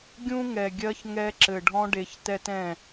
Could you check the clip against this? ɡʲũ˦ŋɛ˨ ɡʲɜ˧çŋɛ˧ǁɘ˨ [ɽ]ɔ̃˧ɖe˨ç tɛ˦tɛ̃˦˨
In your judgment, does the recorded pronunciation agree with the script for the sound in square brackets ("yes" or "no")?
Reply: no